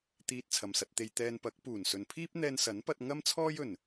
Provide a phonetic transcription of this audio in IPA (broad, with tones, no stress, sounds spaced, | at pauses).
t̪ iː˧ t̚ t͡sʰ ɐ˨ m s ɐ˧ t̚ t̪ e˧ j t̪ ɛː˧ n p ɐ˨˥ k̚ p uː˨˩ n s ɵ˨ n pʰ iː˥ p̚ n̪ ɛː˧ n s ɐ˨˥ n p ɐ˧ t̚ ŋ ɐ˥ m t͡sʰ ɔː˥ j ɵ˨˩ n